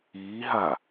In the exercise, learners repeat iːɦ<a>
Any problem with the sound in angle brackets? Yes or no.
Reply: no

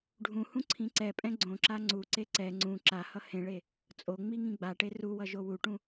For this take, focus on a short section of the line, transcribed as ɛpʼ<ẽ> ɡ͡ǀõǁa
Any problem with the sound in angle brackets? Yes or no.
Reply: yes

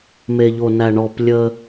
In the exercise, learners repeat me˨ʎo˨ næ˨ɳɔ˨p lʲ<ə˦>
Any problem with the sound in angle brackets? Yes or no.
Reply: no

